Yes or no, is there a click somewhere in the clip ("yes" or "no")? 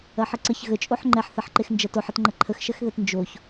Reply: yes